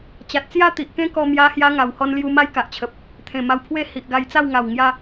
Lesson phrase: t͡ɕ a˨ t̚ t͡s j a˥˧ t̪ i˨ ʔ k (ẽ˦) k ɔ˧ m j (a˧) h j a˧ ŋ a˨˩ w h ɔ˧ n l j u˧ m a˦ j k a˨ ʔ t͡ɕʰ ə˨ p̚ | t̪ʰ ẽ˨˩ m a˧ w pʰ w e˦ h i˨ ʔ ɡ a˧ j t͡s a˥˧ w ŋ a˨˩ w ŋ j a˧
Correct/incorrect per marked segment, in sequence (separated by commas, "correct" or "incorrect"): correct, correct